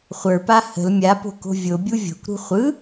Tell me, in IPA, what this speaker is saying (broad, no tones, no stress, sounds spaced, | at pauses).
χʷ ə˞ p a h ə̤ l mʲ a p o̤ k o̤ vʲ o bʲ u vʲ o̤ kʷ ɾ ṳ χʷ ɯ